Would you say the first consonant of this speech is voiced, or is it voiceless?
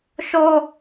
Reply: voiceless